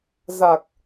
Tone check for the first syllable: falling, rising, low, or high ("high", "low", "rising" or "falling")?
low